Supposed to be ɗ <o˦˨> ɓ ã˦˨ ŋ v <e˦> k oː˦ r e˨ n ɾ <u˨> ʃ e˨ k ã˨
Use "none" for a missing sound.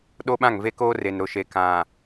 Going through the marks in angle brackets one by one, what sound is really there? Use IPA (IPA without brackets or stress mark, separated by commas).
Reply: o˦, e˦, ʊ˨